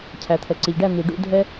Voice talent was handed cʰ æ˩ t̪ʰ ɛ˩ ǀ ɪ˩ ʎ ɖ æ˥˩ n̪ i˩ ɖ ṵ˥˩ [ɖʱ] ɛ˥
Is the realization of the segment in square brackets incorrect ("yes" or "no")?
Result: yes